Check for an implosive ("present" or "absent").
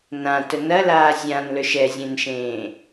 absent